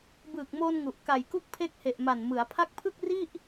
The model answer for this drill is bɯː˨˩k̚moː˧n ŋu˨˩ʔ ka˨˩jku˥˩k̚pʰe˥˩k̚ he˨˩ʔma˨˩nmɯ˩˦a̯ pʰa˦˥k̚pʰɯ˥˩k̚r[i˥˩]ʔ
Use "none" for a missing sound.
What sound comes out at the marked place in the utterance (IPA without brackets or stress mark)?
i˥˩